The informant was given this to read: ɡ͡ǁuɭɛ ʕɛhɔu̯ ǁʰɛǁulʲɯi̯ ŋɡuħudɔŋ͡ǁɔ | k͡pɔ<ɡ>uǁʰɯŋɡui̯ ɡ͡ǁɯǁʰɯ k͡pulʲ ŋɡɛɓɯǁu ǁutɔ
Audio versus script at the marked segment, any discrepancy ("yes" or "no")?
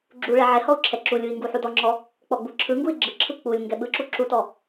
yes